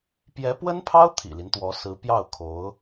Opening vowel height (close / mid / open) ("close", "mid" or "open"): mid